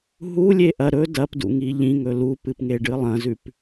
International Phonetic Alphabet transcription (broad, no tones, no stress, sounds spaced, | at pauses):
ɦ u lʲ e ʔ ɐ ɾ ɵ d ɐ p d ṵ ŋ i ʎ ĩ ŋ ɵ l u p ɨ p ŋ e ɖ ɨ lˠ ɐ̃ z ʉ p